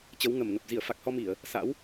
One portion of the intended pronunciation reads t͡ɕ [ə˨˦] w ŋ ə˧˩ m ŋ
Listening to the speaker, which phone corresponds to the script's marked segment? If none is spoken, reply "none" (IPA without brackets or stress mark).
ə˨˦